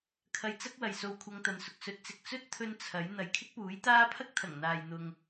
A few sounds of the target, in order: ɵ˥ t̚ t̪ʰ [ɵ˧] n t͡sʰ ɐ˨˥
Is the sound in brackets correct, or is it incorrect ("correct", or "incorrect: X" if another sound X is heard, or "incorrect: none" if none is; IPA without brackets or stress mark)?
correct